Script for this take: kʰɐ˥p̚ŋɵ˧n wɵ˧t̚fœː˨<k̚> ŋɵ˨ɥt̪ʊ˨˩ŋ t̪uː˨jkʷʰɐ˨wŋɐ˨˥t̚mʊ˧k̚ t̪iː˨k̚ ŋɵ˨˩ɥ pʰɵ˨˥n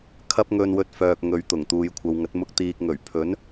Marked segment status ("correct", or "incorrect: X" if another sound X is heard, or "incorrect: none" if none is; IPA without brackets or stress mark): correct